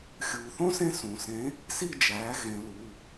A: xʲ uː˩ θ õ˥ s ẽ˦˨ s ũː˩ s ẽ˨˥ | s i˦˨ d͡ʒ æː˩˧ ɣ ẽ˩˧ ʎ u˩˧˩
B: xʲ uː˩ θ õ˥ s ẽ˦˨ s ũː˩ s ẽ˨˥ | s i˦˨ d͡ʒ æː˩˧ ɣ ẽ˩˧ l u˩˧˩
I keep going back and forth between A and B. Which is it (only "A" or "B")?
B